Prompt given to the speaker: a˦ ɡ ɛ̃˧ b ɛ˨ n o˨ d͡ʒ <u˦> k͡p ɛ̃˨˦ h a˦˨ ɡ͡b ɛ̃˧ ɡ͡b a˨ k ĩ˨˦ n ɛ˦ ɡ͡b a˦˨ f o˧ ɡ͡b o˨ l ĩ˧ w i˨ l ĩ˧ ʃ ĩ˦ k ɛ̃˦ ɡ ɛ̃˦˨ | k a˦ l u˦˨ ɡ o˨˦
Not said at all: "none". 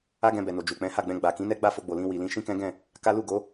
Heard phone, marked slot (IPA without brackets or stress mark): u˨